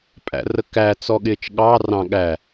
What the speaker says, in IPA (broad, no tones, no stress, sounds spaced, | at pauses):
pʼ æ̰ r ə k æ t͡s ɔ ɠ ɪː t͡ʃ ɠ ɑː r ɑ̃ ɠ æ